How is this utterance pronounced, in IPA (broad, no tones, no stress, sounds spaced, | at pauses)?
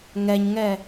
ŋ ɛ ɲ ŋ ɛ